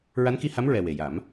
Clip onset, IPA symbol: ɹ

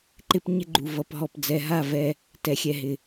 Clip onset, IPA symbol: ǃ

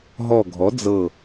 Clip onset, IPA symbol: ɦ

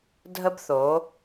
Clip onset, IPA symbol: dʱ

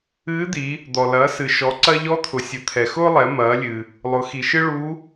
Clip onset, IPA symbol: ɨː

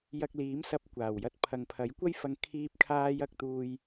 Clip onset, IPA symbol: j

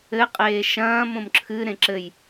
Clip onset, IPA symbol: ɘ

